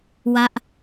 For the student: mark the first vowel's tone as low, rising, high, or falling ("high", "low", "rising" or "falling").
falling